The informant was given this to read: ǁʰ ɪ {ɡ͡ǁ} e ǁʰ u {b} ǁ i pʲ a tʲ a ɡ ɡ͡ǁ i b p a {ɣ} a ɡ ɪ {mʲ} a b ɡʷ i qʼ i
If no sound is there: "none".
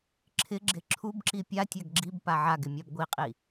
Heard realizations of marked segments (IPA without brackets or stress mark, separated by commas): ɡ͡ǁ, b, ʕ, mʲ